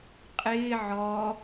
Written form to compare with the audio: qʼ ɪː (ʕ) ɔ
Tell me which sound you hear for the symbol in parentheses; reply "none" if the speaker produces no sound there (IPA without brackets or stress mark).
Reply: ʕ